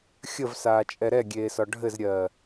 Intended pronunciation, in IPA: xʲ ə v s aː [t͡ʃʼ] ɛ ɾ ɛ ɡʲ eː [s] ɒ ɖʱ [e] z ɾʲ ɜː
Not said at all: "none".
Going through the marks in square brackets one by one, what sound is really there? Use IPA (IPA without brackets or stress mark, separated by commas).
t͡ʃʼ, s, ɘ